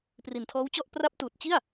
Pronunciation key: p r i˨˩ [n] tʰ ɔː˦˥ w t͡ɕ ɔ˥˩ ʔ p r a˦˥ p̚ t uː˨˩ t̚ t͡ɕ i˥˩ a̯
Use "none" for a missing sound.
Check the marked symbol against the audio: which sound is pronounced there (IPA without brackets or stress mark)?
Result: n